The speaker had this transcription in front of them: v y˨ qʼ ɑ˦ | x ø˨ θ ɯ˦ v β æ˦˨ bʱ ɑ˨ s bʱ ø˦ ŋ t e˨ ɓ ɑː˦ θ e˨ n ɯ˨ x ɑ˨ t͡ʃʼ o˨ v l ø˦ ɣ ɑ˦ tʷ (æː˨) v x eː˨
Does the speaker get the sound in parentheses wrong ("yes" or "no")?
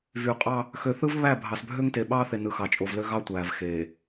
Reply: no